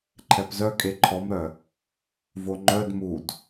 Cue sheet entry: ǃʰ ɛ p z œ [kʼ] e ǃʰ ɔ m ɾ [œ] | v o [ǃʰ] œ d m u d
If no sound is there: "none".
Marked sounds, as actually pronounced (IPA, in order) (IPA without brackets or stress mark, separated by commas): kʼ, œ, ŋ͡ǃ